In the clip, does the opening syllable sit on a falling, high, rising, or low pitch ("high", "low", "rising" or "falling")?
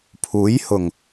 rising